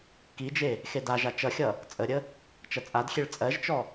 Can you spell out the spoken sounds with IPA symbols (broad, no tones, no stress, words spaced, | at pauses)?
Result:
kid͡ʒe | xedaʒa t͡ʃʌxʲʌ | t͡sʼəɾʲə | t͡ʃɐt͡sʼadxʲeɭ t͡sʼɜʒt͡ʃɔ